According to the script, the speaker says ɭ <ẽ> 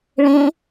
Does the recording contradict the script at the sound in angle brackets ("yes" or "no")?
no